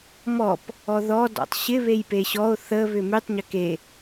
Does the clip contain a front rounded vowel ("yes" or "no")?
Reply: yes